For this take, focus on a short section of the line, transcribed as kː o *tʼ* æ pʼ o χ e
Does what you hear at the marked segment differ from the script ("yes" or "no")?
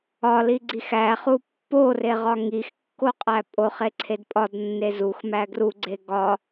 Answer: yes